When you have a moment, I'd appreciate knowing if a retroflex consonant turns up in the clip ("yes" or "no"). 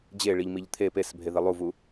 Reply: yes